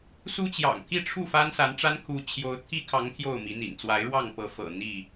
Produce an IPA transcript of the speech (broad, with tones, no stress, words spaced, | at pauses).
su˦t͡ɕjɑ̰˨˩ŋt̪ʰi˥˨ʈ͡ʂʰu˥˨ fa˦nsa˨˦nʈ͡ʂa˦nkʰu˨˦ t͡ɕʰjo˦ʊ̯ t̪ʰi˦kʰɑ˨˦ŋ pʰjo˥˨ʊ̯mi˨˦n̪ḭ˨˩nt͡swa˨˦ɪ̯ ɻwɑ˥˨ŋpɤ˨˦ fɤ̰˨˩ n̪i˥˨